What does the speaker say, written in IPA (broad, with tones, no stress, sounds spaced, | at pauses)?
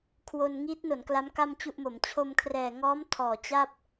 kʰ w o˧ n ŋ i˦˥ t̚ n o˩˦ n k l a˦˥ m k a˥˩ m t͡ɕ u˥˩ ʔ m o˩˦ m t͡ɕʰ o˧ m kʰ r ɛː˨˩ ŋ ɔː˦˥ m tʰ ɔː˨˩ t͡ɕ a˥˩ p̚